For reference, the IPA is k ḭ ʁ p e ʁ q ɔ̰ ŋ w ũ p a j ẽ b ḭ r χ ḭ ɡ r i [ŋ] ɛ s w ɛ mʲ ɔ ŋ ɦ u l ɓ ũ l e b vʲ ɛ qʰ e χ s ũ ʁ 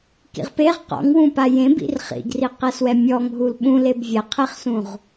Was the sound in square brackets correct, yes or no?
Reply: no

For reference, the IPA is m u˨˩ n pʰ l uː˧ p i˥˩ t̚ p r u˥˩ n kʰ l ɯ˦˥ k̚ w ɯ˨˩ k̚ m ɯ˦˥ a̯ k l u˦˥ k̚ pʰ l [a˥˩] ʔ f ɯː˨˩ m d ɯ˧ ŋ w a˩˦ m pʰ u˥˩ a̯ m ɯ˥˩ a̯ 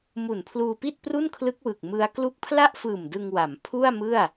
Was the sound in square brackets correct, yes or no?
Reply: yes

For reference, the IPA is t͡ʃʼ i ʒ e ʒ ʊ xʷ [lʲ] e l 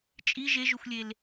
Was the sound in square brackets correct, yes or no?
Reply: yes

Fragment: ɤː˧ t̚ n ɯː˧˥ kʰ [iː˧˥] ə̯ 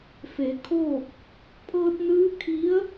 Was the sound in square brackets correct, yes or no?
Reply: no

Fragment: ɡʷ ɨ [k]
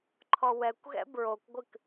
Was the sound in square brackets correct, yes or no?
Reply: yes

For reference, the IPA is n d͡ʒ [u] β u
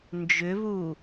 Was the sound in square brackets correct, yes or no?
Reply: no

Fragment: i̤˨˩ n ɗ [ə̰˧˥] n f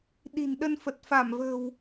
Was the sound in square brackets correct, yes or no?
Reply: no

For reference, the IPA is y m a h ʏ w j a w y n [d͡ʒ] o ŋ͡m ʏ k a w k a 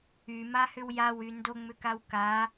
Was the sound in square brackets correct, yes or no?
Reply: no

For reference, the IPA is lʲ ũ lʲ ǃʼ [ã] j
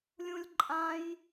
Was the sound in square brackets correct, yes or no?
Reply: yes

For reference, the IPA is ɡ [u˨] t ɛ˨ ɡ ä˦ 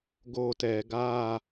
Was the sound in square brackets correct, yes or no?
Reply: no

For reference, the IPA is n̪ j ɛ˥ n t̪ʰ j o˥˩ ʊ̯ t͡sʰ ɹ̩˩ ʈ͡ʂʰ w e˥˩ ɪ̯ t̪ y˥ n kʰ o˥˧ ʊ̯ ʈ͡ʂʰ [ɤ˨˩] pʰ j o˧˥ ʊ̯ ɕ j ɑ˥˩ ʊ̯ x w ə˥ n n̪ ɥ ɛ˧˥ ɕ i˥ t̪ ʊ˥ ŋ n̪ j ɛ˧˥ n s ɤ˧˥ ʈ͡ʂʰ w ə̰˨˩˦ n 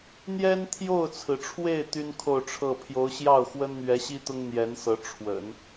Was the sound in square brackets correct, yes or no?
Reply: no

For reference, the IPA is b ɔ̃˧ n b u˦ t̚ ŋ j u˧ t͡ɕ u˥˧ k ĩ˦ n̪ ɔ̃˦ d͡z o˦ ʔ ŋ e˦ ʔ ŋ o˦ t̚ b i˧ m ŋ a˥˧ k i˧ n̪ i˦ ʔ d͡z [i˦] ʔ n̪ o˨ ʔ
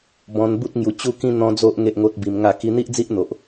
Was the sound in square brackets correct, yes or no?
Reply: yes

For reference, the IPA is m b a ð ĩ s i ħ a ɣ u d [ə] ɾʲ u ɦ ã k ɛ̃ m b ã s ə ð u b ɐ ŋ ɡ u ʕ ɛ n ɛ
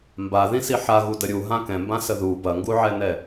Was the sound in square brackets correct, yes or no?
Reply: yes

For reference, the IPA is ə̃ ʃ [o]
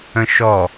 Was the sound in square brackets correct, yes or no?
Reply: no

